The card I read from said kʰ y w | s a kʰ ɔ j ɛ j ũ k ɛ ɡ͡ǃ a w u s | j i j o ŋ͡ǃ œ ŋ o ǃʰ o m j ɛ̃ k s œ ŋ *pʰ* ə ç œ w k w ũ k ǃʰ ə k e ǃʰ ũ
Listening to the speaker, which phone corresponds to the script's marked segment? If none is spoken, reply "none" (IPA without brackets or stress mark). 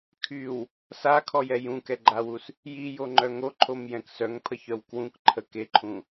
pʰ